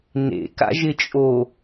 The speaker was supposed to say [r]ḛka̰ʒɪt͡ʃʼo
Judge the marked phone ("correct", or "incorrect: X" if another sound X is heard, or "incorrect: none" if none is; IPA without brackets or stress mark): incorrect: n